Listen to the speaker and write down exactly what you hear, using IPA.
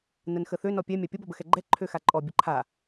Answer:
n ə n x ə θ ø n ɔ pʲ ɛ mʲ a pʲ ə b ɔ b ə x ɛ ɡ͡ǃ ɛ ǃʰ ø x a ǃʼ ɔ bʲ ə ǃʰ a

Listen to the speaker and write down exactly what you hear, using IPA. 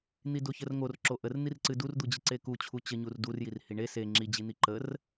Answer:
n̪ i d o ç ə r ŋ o r ǁ o ʔ ə r n̪ i r ǀ ɨ d u r d̪ u d͡ʑ ɨ ǀ e k u t͡ɕʰ u t͡ɕ ə ɲ u r d u r j i r h i ɳ e s e ŋ͡ǁ i d͡ʑ i n̪ i ǃ ə r

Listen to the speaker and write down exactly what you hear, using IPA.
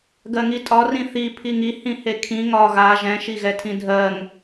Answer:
ɡ ɜ ŋ i tʼ ɒ r ĩ θ i pʰ i ŋ i h ĩ h e kʰ ĩ ŋ ɒ ɣ a ʒ ɛ̃ ʃ i ɣ ɛ tʰ ĩ dʱ ɜ ŋ

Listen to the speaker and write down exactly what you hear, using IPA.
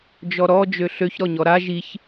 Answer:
d͡ʒ ɔ ɾ ɔ d͡ʒ ø ɬ ø ç ɾ ɔ ɲ ɔ ɾ a ʒ i ç

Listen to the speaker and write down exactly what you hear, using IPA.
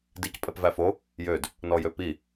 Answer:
d i c pʼ ɛ p v æ f o | j ø d | n ɔ j ø p i

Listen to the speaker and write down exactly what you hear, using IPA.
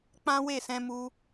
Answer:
k͡p ã˦ w e˦˨ s ɛ̃˧ m u˧

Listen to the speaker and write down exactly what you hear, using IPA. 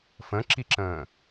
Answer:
f ə̃ ǁ i ǁ ə̃ː

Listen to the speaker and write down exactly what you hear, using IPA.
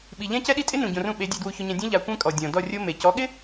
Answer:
ɓ i˨ ʎ ɛ̃˦ c ɛ˦ ɗ i˦ tʼ ɪ˦ n ũ˨ ɟ õ˨ r ũ˧ ɓ e˨˦ dʲ ɛ˧ d w u˧ ç ʊ˧ ɲ ɛ̃˧ dʲ ũ˦ ʎ a˧ kʷ ẽ˦ kʼ ɔ˨ dʲ ɔ̃˨ d ɔ˦˨ rʲ o˦ m e˨ c ɔ˨˦ ɠ ɪ˦

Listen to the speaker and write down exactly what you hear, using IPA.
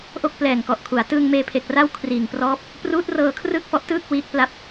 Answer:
ʔ o˥˩ k̚ p l ɛː˨˩ ŋ k ɔ˨˩ ʔ kʰ u˩˦ a̯ t ɯː˧ ŋ m eː˧ pʰ e˨˩ k̚ r a˥˩ w kʰ r iː˨˩ ŋ p r ɔː˦˥ p̚ | p r uː˦˥ t̚ r ɤː˧ kʰ r ɯː˥˩ k̚ f ɔ˦˥ ʔ t ɯː˥˩ k̚ w iː˦˥ k̚ p l a˥˩ p̚

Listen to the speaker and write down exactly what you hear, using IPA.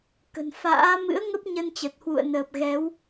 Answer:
k ə̤˨˩ n f a̰ː˧˥ m ɨ̰˧˥ ə̯ ŋ ə˦˥ p̚ ɲ ə˧ n t͡ɕ ə˨˩ t̚ h w ṵ˧˨ ə̯ n əː˨˩ p̚ ɣ ɛ˨˦ w

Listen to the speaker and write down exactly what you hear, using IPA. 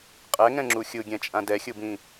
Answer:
qʼ ɛ ŋ ɛ̃ ŋ͡ǁ u xʲ ɯ ɡʲ ɛ̃ t͡ʃʼ ã d ɛ xʲ ɯ b ĩ

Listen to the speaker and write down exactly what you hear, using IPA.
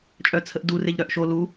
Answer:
t͡ʃʼ œ t͡sʰ ə ʔ d u r e ʎ ɾ œ ʔ ʃ o l u

